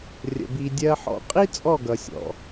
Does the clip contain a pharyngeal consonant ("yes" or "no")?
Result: yes